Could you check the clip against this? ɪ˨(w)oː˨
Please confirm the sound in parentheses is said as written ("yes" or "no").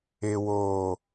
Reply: yes